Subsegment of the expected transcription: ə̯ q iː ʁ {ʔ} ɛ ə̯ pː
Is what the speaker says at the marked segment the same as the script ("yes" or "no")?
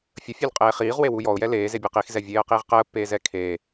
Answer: no